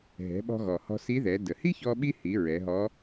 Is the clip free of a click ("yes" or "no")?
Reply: yes